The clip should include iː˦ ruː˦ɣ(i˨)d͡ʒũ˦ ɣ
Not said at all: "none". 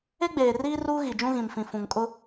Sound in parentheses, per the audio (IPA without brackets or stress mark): i˨